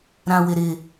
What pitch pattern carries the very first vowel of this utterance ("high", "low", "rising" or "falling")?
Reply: low